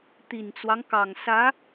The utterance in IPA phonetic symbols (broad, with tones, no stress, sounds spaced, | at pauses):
t̪ i˨˩ n t͡s w ɑ˦ ŋ k ɑ˨˩ ŋ s ä˧˥